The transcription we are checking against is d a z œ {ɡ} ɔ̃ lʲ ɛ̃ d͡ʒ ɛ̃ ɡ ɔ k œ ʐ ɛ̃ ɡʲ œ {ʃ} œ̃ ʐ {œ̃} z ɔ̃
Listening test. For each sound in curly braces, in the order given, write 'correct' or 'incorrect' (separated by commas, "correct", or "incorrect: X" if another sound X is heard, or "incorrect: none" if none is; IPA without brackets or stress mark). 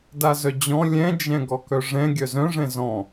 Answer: incorrect: d͡ʑ, incorrect: z, incorrect: ɛ̃